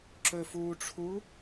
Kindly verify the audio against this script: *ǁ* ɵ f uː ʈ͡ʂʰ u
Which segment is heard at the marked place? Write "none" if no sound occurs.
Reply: ǁ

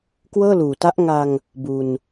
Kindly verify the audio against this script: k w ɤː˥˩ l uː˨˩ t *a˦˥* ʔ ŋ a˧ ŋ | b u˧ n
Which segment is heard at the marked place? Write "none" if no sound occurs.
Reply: a˦˥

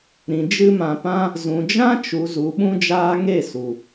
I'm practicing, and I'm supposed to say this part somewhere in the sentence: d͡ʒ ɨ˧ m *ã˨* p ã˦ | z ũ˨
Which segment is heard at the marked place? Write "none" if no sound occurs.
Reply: ã˨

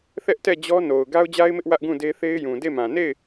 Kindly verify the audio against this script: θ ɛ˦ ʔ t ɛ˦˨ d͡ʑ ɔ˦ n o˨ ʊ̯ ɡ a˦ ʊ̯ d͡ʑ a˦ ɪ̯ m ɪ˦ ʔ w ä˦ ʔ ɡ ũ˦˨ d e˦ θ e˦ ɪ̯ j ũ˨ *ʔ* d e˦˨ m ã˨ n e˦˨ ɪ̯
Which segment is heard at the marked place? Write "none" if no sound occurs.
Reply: none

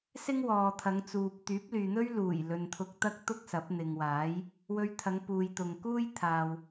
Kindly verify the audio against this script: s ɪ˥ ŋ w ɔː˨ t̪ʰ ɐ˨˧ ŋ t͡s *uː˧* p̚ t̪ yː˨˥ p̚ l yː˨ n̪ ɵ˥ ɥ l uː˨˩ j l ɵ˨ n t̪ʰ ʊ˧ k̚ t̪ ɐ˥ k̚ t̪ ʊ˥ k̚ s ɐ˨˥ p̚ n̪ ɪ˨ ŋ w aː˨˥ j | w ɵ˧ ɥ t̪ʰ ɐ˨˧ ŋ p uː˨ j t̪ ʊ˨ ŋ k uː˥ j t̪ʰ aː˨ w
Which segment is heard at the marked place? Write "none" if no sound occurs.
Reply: uː˨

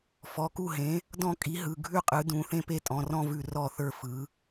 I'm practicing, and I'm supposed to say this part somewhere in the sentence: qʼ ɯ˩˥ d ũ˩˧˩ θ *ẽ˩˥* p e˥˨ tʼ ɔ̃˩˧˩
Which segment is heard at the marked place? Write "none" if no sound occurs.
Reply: ẽ˥˨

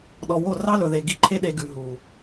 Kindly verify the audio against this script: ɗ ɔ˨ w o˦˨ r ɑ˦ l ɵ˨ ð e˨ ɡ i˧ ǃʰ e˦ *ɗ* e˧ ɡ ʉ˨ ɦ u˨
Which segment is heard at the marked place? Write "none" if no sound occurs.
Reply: ɗ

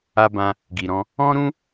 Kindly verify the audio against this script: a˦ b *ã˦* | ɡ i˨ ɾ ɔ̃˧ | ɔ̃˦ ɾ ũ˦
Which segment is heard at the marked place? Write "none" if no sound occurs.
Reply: ã˧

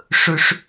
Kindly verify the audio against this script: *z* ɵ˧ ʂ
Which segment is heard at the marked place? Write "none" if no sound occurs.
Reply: ʂ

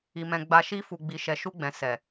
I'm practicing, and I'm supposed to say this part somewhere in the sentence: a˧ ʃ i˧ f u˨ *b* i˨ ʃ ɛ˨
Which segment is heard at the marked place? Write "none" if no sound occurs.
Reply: ɡ͡b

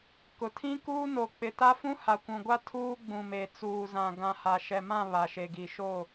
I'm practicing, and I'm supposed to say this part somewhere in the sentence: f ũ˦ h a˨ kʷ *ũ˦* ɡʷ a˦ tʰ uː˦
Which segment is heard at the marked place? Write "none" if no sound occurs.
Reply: ũ˨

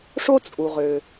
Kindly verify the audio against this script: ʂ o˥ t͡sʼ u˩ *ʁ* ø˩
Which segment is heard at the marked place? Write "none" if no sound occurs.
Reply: ʁ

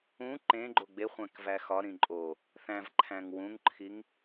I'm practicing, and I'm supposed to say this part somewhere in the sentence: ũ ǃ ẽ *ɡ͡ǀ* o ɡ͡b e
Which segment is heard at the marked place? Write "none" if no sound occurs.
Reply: ɡ͡ǃ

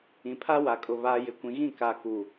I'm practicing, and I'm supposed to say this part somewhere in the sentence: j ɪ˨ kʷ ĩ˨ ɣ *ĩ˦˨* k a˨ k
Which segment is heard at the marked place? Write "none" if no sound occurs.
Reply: ĩ˦˨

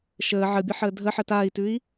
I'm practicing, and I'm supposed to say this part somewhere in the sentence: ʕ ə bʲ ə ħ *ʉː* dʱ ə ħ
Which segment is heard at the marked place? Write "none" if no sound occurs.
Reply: əː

